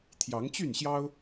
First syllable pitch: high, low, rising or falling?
rising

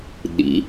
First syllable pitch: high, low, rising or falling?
rising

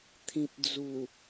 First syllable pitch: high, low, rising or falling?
low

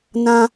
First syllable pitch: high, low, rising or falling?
high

